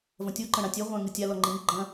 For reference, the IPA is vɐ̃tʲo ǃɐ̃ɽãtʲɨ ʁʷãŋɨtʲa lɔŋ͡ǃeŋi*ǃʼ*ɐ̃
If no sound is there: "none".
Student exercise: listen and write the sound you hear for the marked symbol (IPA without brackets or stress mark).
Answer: ɡ͡ǃ